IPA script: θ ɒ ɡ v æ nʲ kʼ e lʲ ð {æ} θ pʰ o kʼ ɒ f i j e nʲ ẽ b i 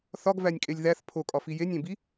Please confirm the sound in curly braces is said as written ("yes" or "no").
yes